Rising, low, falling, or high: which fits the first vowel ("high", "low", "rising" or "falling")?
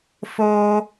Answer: high